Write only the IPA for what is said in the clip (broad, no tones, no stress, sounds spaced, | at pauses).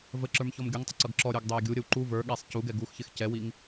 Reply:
v ə ǁ ə˞ m ç ɔ m ɡʲ ʌ ŋ tˤ ɪ ǀ ʌ ɡ ǁ ɔ ɾʲ ə˞ ɡ dˤ ɛ e̯ ɡʲ u ɾʲ ə w ǃ u v ə˞ ɠ ɛ sˤ c u ɡ ɛ ɡ u x ç ɪ x c ɛ w i ŋ